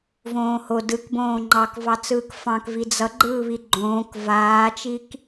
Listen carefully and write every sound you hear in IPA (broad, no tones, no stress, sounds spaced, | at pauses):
v õː h o d ɯ k b õː ŋ͡ǃ ɑ k v ɑ t͡s ɯː k f ɑ̃ k v i d͡z ʌ ɡ͡ǃ ɯː β i ɡ͡ǃ õː k v aː t͡ʃ i k